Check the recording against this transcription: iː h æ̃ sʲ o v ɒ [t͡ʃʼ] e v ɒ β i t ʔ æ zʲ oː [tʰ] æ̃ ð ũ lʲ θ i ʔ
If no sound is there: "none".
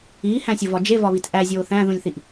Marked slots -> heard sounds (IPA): d͡ʒ, θ

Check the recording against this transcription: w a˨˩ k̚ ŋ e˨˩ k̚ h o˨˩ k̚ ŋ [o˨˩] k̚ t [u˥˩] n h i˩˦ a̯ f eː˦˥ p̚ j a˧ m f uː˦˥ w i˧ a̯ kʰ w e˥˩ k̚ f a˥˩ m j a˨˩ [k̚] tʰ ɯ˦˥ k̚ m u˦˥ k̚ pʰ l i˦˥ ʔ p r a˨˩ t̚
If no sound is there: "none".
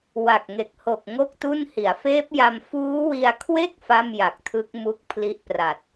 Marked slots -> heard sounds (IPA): o˥˩, u˥˩, k̚

